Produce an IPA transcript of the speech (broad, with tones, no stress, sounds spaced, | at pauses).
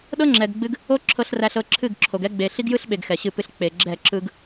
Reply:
ɗ ɤ˦ ŋ͡ǁ ɛ˨ ɡ ɡ͡b ɨ˦ ɡ | o˦ ǁʰ ɤ˨ ɬ r æ˨ ɬ ɤ˨ ǁʰ ɨ˦˨ ɡ ǁʰ o˨ ɡ ɛ˦ ɡ͡b e˨ ɬ i˦ ɡ j ɯ˦ ɬ ɓ e˨ ɡ x ɛ˨ ɕ ɨ˦˨ p ɨ˦ ɬ k͡p e˨ ɡ͡ǁ ɛ˦˨ ǁ ɯ˦ ɡ